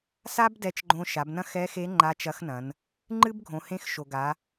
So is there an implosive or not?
no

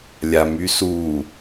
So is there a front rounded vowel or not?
yes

